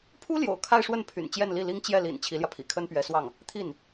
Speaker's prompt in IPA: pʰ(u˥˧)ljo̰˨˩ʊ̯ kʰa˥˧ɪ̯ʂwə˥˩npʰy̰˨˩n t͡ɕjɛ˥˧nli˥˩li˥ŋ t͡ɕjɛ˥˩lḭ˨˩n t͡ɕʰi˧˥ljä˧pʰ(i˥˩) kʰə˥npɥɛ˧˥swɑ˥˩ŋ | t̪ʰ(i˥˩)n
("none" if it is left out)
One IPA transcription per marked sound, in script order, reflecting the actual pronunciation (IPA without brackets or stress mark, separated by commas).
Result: u˥, ḭ˨˩, i˥˩